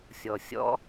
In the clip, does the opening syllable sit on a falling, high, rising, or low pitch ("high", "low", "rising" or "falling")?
low